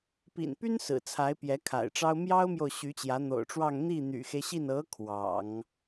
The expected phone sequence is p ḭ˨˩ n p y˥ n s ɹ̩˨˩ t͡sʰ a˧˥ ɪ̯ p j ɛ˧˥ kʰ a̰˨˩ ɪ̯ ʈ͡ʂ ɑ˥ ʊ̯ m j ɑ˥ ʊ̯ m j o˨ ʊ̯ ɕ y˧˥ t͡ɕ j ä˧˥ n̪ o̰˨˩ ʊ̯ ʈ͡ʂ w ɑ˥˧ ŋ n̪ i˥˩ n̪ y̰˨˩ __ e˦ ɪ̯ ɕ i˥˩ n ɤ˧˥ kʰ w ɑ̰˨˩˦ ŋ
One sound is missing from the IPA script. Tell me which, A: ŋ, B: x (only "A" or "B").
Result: B